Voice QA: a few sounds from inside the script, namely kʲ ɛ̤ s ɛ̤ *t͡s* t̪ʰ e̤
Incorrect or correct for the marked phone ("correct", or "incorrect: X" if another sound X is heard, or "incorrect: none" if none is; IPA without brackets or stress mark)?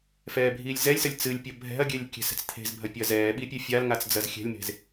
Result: correct